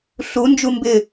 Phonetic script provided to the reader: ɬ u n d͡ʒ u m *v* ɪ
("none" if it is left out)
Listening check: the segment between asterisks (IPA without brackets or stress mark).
b